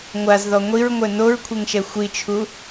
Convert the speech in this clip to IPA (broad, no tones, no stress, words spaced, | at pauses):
ŋʷazðɔ ŋʷiɹŋʷɛ noɹkʷʰeŋʃɛ xʷit͡ʃʰu